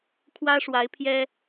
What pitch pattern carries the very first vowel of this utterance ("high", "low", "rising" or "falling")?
high